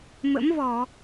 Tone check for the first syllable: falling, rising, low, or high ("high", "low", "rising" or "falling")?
rising